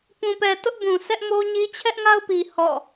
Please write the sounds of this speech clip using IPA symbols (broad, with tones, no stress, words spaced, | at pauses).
pũ˨pɛ˨tʊ˦ʔbũ˨ sɛ˦ʔmo˦ɲi˦ t͡ɕʰɛ˦ʔŋa˦ʊ̯pi˨ hɔ̰˦˨